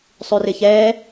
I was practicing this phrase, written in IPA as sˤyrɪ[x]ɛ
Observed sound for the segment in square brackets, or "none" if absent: ç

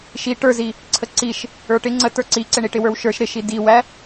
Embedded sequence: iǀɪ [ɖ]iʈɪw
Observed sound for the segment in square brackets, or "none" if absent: ɳ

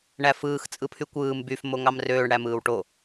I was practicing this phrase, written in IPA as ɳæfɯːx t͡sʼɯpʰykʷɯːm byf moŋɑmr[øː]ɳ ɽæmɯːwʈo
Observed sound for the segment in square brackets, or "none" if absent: øː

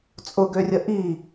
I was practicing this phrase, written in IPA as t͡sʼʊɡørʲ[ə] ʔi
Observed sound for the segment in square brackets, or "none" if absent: ə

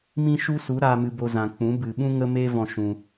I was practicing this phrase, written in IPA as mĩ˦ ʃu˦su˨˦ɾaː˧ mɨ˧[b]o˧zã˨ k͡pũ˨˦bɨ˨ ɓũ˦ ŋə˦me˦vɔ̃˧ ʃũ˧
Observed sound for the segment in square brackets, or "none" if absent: b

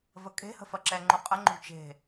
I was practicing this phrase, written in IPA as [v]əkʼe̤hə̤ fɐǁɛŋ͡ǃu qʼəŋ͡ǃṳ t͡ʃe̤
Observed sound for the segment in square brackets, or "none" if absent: v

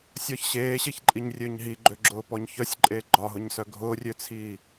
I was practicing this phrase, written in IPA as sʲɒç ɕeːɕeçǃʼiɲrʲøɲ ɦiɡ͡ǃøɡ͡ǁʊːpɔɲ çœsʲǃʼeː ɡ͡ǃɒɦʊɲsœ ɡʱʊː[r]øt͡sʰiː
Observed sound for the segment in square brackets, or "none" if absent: rʲ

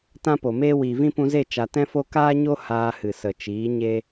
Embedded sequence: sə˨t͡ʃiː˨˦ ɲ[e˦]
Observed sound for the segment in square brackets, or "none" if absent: e˦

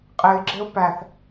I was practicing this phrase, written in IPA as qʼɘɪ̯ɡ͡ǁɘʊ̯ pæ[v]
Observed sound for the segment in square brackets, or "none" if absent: θ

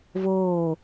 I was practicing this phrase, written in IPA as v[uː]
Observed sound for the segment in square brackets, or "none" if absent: oː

